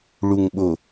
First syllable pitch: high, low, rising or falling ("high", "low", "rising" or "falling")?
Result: low